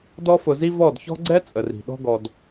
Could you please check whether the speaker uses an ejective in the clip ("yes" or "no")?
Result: yes